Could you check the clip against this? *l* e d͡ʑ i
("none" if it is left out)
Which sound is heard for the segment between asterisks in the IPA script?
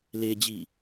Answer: l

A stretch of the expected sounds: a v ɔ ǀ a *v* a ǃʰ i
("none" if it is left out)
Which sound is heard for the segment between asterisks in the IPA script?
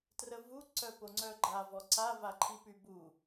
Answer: v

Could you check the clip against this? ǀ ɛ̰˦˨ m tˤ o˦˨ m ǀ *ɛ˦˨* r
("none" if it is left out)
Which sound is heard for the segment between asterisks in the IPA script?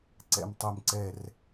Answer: ɛ˦˨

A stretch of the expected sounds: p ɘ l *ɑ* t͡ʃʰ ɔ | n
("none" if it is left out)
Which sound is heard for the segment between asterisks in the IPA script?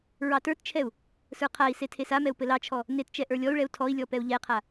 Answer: ɑ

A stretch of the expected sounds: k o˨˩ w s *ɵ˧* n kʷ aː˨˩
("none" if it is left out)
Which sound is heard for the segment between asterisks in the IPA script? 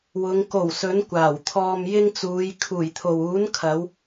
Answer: ɵ˨˥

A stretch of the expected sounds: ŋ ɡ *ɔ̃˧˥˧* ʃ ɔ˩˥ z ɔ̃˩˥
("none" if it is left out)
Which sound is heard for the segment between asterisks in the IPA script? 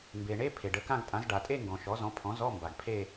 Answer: ɔ̃˩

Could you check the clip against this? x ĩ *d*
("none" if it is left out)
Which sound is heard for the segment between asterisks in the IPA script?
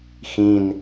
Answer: n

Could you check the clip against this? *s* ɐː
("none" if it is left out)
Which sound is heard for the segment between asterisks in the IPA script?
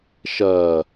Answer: ʃ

